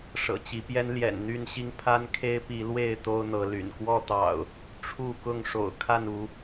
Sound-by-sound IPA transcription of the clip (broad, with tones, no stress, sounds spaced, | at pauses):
ʂ ɤ̰˨˩ t͡ɕ i˨˦ p j ɛ˦ n l j ɛ̰˨˩ n n̪ y˥˨ n ɕ i˦ ŋ pʰ a˦ n kʰ e˦ ɪ̯ p i˨˦ l w e˥˨ ɪ̯ t̪ o˦ ʊ̯ n̪ ɤ˨˦ l y̰˨˩ n k w ɔ˥˨ t̪ ɑ̰˨˩ ʊ̯ | ʈ͡ʂʰ u˥˨ k ʊ˥˨ ŋ ʂ o̰˨˩ ʊ̯ kʰ a˥˨ n u˨˦